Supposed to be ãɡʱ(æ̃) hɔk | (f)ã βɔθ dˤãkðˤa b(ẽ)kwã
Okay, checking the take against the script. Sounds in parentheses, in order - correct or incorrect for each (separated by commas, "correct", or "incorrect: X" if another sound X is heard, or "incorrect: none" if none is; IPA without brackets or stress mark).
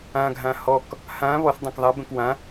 incorrect: ã, incorrect: h, incorrect: ɛ̃